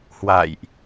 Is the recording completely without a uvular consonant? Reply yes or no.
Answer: yes